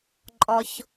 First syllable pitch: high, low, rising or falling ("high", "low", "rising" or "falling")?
low